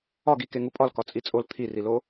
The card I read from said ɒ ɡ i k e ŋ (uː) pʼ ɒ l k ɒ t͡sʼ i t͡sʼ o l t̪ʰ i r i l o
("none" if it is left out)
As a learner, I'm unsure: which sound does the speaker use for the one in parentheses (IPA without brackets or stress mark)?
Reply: u